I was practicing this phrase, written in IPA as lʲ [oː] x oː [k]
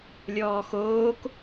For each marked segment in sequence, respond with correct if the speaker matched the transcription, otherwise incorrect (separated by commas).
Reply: incorrect, correct